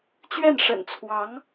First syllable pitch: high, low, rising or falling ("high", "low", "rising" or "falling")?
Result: falling